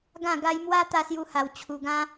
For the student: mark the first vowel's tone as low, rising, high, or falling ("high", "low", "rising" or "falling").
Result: falling